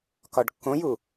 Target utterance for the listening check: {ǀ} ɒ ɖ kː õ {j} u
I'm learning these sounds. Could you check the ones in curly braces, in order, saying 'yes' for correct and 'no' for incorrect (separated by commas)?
no, yes